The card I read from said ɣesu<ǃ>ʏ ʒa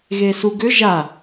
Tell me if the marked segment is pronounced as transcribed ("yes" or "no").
no